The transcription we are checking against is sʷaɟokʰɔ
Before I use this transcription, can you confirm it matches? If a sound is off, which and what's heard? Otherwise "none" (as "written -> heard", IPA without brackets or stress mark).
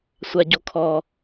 none